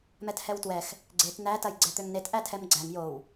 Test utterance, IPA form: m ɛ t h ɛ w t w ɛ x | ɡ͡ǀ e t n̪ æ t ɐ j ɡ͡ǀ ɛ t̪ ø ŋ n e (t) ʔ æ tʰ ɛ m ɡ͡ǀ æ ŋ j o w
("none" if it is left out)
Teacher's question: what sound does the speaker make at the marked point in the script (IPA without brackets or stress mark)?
t